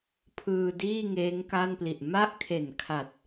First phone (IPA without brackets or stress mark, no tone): pʰ